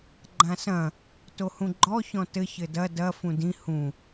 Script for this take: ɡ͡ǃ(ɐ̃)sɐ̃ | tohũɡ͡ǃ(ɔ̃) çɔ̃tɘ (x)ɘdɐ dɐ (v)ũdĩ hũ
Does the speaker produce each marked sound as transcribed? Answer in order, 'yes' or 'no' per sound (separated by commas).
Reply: no, no, no, no